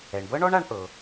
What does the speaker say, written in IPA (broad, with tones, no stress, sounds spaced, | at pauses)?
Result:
ɛ˩ ɳ b ɤ˥ ɳ ɔ˥ ɳ a˧ ɳ ʔ ɤ˩